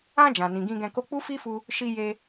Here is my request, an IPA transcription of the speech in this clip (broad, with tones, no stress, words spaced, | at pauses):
ã˧ d͡ʒã˨nĩ˨ɡĩ˧ɡɛ̃˧ ko˧k͡pu˦fi˦fu˧ | ʃi˧je˧